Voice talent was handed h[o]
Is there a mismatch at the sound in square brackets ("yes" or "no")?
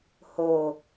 no